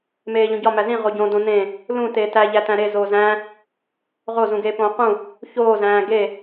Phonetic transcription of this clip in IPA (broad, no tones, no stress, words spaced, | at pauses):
meːʎõɟɒ mæzĩ ʁoɟõ dõnẽ | lũ teːtæ ʎætæ̃ɾe zoːzæ̃ | ʁo zũɡeːpõːqũ | çoː zæ̃ːɡe